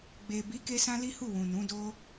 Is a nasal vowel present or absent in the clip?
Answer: present